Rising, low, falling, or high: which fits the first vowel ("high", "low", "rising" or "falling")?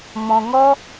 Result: low